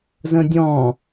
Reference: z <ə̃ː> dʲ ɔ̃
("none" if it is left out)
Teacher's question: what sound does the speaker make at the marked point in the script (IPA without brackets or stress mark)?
ə̃